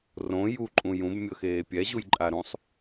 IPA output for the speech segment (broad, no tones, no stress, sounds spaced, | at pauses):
r õ j u ǃʼ ũ j ũ b mʲ ɤ x eː pʲ ɛ ʑ u j ǃʼ a ɾ ũ sˤ